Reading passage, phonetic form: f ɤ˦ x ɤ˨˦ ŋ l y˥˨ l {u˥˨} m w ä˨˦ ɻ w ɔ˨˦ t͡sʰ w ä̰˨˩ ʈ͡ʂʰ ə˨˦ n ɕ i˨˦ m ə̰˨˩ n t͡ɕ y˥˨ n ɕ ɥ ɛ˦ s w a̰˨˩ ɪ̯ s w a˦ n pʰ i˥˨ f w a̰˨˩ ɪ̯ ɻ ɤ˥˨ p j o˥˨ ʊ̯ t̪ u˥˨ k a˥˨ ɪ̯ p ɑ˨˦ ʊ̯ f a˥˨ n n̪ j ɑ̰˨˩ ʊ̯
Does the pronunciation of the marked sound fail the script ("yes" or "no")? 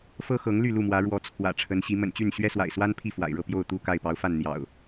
no